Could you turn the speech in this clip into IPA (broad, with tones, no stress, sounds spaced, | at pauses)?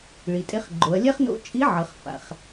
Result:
ɭ i˩ tʼ e˧ χ ɡ͡ǃ o˩˧ ɐ̯ lʲ ɛ˥ χ n o̰˧˥ t͡ʃʼ i˧˥ ʕ ʌ˩˧ χ f a̰˩ χ